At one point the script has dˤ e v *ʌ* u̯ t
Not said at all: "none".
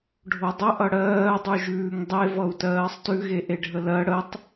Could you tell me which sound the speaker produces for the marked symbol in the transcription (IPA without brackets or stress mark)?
ʌ